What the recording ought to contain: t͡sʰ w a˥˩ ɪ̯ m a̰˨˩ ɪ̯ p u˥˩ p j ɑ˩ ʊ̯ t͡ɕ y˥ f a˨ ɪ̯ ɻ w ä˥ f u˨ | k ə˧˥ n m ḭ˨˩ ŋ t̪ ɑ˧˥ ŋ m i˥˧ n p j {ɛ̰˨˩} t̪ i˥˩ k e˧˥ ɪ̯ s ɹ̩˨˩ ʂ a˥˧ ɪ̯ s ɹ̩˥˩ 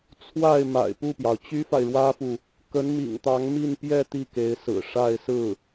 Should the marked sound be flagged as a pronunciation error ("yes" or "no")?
yes